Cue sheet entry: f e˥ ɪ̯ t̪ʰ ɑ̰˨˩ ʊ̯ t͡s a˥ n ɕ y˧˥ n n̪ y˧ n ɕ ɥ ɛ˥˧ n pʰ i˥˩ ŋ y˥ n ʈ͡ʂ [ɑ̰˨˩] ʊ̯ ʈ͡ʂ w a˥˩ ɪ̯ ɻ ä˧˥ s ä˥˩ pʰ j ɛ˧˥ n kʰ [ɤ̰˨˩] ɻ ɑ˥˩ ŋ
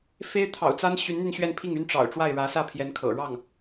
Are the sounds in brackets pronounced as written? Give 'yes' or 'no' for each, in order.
yes, yes

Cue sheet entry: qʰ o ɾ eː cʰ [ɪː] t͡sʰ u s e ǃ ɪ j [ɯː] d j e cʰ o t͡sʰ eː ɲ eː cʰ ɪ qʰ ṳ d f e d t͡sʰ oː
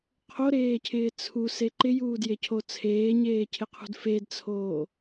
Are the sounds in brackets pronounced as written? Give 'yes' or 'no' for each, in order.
yes, no

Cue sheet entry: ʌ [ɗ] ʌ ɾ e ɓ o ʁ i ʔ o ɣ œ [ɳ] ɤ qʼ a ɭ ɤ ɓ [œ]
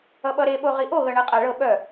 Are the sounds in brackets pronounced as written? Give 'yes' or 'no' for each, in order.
no, yes, yes

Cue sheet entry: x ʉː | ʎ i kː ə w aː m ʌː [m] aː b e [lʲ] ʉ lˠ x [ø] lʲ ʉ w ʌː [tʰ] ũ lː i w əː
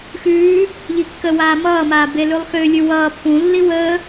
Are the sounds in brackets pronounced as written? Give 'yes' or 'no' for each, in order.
yes, no, yes, no

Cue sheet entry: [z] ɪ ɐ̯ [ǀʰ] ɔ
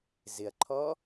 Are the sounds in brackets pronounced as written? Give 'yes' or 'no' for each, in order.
yes, no

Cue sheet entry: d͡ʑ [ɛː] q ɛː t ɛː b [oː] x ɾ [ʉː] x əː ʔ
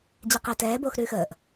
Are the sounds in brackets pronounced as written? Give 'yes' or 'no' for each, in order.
no, yes, yes

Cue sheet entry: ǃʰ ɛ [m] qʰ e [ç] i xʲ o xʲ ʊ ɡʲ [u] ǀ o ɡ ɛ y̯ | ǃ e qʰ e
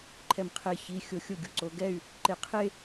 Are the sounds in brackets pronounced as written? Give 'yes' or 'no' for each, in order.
yes, yes, yes

